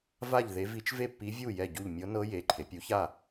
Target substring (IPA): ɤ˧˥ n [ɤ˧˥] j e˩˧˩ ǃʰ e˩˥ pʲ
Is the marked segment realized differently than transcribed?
no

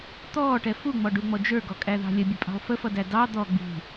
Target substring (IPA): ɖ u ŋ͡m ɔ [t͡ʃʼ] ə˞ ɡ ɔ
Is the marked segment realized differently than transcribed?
yes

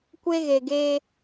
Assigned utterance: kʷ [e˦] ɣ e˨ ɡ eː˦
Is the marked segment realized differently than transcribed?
no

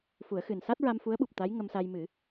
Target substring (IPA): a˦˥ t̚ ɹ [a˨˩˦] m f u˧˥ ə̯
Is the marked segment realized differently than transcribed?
yes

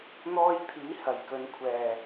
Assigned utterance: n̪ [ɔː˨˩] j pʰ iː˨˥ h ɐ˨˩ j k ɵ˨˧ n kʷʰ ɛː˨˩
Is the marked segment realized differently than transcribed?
yes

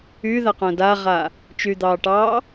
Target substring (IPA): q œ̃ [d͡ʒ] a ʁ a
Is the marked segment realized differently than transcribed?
yes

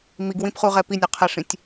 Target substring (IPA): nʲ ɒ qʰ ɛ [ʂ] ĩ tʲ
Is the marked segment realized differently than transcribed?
no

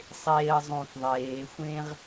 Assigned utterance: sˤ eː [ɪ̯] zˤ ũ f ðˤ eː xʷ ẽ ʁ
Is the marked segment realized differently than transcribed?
yes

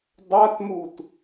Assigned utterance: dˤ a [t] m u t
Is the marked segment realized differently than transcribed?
no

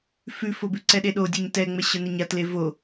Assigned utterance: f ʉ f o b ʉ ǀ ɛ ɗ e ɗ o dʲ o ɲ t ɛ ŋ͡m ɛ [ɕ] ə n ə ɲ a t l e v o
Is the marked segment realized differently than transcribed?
no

